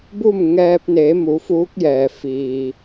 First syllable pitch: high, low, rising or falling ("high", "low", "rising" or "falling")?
falling